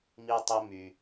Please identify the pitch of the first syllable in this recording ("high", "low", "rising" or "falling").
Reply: high